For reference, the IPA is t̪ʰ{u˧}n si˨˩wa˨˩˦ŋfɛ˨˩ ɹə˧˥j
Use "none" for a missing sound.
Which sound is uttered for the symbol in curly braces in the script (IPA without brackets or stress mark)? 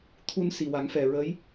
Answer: u˧